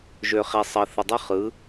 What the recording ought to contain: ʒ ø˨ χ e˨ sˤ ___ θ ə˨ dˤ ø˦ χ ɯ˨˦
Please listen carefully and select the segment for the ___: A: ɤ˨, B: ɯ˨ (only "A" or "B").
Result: A